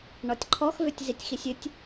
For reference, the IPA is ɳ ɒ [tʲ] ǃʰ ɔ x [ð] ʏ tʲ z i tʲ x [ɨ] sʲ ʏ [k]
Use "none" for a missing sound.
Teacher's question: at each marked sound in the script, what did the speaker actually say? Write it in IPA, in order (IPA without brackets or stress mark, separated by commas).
tʲ, v, i, tʲ